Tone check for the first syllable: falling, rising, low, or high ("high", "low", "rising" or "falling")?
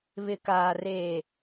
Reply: low